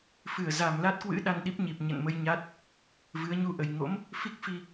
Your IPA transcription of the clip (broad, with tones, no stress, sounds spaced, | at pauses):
f ɨ˧˩ ə̯ z a˨˩ m l a˦˥ t̚ k w ɨ̰˧˥ ɗ a˧ n ɗ i˦˥ p̚ ɲ i˨˩ p̚ ɲ ə̰˧˨ n m ə˧ j ɲ a˦˥ t̚ | v ɨ˨˦ ə̯ ɲ u˧ ʔ ə˨˩ j ŋ o̰˧˥ m | f i˦˥ k̚ f i˧